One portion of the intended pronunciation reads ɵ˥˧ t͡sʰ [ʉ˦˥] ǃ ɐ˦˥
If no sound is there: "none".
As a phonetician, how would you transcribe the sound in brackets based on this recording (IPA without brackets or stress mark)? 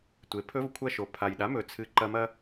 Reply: ɨ˦˥